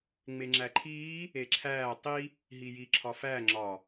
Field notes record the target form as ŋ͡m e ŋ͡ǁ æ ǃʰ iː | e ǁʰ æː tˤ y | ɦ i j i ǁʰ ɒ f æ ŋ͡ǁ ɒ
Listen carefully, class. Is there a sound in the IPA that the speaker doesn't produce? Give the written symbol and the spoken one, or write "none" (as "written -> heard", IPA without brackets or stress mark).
y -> i